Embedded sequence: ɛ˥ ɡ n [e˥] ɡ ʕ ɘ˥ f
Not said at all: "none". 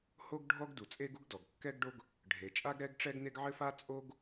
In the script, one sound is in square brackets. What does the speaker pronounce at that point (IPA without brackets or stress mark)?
e˥